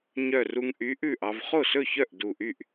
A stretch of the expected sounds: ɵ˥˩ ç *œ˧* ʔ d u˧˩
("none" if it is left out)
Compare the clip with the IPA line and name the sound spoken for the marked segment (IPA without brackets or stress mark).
œ˥˩